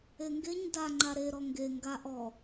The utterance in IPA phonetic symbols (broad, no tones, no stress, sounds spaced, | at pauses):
e ŋ ɡ e ɲ d a ŋ͡ǃ a ɾ e ɾ ɔ ŋ ɡ e ŋ ɡ a ʔ ɔ